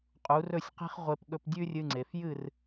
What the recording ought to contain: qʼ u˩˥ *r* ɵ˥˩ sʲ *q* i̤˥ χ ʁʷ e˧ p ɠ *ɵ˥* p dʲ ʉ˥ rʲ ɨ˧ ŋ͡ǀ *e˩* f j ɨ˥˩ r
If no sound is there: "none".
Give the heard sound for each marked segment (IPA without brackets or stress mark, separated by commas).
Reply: r, q, ɵ˧, e˩